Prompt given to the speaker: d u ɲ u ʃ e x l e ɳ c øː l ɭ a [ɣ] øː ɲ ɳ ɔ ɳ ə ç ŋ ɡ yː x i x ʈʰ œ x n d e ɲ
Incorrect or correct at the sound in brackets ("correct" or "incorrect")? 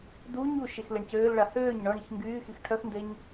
incorrect